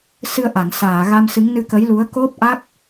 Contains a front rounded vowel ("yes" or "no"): no